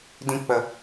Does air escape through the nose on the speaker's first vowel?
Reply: yes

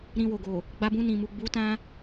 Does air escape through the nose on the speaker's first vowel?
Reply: yes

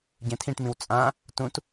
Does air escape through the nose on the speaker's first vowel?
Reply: yes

